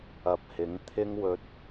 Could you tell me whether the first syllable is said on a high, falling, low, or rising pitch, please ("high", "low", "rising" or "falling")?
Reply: low